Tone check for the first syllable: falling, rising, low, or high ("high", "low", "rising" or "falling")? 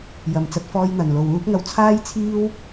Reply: low